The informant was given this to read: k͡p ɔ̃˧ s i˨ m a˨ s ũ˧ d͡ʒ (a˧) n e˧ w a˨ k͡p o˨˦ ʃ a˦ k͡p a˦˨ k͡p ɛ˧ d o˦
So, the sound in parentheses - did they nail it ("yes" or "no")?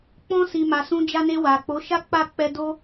yes